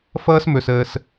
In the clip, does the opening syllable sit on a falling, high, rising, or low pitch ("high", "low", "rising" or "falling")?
high